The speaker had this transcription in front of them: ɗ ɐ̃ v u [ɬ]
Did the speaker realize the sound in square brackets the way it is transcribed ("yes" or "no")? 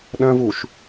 no